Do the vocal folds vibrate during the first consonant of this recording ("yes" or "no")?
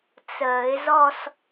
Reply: no